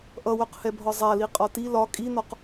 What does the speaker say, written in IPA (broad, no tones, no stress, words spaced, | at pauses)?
ʔʌwœqhɛbʱɒ zˤaliqʼɒ ti lɒ kʼinɒq